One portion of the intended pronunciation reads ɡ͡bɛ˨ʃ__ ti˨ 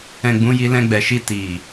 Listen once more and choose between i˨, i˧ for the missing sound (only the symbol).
i˧